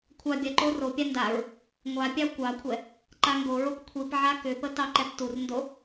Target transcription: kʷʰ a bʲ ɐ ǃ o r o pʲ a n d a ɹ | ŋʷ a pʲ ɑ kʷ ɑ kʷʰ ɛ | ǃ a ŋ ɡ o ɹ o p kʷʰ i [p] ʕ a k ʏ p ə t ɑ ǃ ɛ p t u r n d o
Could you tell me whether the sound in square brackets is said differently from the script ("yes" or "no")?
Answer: no